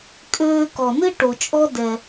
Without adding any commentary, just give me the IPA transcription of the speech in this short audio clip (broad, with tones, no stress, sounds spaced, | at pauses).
kʼ øː˧ k ɔ˩ n ɨ˥ ʈ o˩ t͡ʃʼ ɔ˥ d ɛ˩